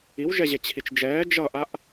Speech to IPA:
i w ʒ ɛ ʑ e t͡ɕʰ i t͡ʃ d͡ʒ ɛː d͡ʒ ʌ ʔ a ʔ

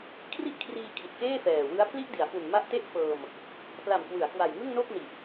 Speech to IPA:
kʰ r i˥˩ ʔ kʰ r iː˧ kʰ i˨˩ t̚ k eː˥˩ f ɛː˨˩ w ɯ˦˥ a̯ pʰ l i˥˩ ʔ d i˩˦ a̯ f u˨˩ n m a˦˥ ʔ t e˥˩ ʔ f ɤː˧ m | p l a˨˩ m k w ɯ˩˦ a̯ k w a˨˩ j ŋ ɯ˥˩ ŋ n o˥˩ k̚ n i˨˩ ʔ

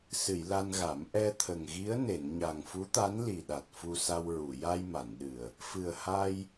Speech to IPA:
s ɨ˨˩˨ j l a˧ n ɣ a˨˩˦ m ʔ ɛ˧ t̪ʰ ə˨˩ ŋ ɣ i˧˥ ə̯ n e˨˩˨ n ɲ a˨˩ ŋ f u˧˥ t̪ a˧˥ n l i˨˩ ɗ a˨˩ t̚ f u˧ s a˧ w ɹ u˨˩˨ j a˧ j m a˨˩˨ n ɗ ɨ˨˩ ə̯ | f ɨ˨˩ ə̯ h a˧ j

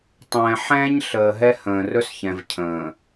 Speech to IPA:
tˤ ɛ̃ː˨ ħ ɛ̃ː˦ ɲ ɬ əː˨ ɦ ɛ˦ h ə̃ː˨ r ɵ˦ s ç ɛ̃˨ v cʰ ə̃ː˨

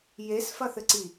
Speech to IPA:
j e s f ɐ θ ɘ ǀ i

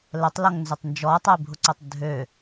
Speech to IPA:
l ə tˤ l ɔ ŋ n z ʏ tˤ n d͡ʒ ɔ tˤ ɐ ɪ̯ bʱ ʊ ǀ ʊ tˤ dʱ ø

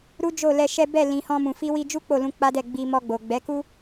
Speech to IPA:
ɾ u˦ d͡ʒ o˦˨ l ɛ˧ ʃ ɛ˦ b ɛ˦˨ l ĩ˨ h ɔ̃˧ m ũ˨ f i˧ w i˧ d͡ʒ u˦ k͡p o˦˨ l ũ˧ k͡p a˦ d ɛ˦˨ ɡ͡b i˧ m ɔ˧ ɡ͡b o˨ ɡ͡b ɛ˨˦ k u˦

